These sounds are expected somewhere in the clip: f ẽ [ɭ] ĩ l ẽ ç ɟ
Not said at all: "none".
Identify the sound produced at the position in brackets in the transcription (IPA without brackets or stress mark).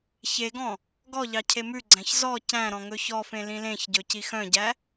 l